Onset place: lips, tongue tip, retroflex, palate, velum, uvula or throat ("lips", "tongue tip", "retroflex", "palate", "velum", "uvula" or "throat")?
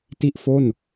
tongue tip